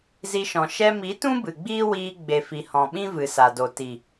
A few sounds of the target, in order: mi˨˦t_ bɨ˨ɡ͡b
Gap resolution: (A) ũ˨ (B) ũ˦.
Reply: B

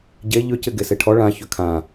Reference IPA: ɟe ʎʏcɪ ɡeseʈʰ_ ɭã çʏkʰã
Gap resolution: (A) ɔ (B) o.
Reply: A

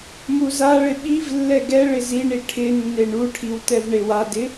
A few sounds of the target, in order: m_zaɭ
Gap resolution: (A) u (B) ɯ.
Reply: A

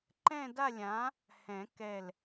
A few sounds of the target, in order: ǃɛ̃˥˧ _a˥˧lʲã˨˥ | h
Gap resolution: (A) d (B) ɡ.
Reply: A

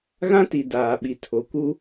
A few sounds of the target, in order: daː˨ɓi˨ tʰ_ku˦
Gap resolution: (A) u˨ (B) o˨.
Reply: B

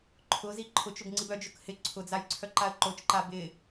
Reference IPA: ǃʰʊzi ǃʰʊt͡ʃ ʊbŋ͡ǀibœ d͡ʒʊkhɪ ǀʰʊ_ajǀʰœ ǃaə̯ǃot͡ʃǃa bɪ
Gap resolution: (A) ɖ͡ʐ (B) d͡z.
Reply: B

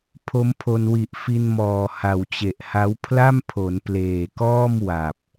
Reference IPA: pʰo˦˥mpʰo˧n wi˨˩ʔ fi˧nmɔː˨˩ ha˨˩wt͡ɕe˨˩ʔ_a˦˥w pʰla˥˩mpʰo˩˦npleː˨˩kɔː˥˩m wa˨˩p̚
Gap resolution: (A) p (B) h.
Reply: B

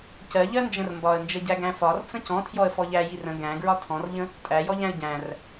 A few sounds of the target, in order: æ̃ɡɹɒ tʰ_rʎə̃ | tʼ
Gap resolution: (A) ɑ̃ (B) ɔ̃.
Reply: B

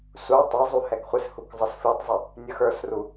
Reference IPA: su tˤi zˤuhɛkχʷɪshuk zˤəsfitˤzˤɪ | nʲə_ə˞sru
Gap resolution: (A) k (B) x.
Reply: B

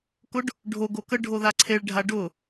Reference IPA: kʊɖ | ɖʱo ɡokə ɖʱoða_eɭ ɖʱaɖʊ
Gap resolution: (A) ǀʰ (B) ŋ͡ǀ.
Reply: A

